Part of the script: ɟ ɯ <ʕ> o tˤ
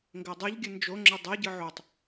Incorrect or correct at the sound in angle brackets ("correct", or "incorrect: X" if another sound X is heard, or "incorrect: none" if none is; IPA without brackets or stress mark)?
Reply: correct